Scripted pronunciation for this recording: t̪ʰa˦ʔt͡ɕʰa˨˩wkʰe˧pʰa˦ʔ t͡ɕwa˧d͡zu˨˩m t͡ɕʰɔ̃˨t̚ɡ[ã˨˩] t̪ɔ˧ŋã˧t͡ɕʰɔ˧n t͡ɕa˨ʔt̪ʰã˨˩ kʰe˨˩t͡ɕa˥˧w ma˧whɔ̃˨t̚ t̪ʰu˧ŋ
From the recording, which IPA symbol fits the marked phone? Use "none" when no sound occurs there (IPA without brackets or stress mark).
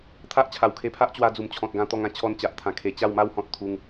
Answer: ã˧